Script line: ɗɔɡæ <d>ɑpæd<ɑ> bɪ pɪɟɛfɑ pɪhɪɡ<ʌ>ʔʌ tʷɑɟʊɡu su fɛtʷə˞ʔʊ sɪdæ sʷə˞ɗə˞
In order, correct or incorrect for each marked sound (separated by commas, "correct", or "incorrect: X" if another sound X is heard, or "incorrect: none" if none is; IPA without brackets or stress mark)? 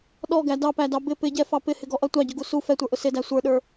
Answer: correct, correct, incorrect: ɔ